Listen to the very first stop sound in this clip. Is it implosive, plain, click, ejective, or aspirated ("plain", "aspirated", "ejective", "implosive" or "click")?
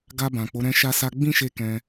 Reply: plain